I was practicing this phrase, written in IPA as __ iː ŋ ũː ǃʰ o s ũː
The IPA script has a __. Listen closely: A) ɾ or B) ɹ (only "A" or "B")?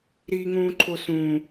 A